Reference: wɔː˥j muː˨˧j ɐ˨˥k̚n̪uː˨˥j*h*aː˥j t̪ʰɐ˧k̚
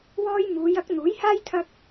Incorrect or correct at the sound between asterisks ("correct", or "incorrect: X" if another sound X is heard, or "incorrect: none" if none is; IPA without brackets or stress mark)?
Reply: correct